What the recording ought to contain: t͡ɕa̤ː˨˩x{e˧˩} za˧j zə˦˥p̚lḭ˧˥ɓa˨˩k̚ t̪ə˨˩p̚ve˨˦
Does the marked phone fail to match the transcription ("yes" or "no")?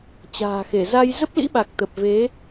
no